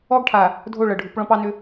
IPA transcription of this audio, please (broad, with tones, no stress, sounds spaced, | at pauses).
ɔ˦ ɡ ʈʰ a˨ | dʱ o˦˨ ɭ ɤ˨ ɖʱ u˨˦ p ɭ ɔ̃˦ p ɑ˦ n ʏ˦